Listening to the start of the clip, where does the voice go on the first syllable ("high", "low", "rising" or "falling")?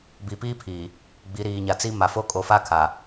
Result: low